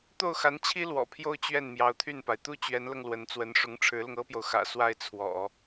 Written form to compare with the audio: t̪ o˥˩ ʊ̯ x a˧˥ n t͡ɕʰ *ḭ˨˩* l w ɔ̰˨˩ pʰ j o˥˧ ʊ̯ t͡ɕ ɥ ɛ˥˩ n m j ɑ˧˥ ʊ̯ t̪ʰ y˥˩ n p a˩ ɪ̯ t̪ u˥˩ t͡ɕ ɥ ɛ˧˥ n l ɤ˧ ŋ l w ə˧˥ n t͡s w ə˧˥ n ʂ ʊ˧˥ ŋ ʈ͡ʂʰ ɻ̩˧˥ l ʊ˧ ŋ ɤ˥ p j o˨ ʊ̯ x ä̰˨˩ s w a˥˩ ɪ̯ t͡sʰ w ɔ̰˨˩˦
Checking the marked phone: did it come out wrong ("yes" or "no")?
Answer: yes